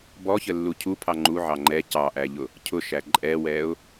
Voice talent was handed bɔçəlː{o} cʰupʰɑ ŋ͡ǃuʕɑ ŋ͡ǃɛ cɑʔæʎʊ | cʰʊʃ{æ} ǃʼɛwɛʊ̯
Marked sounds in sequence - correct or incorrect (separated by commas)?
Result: incorrect, correct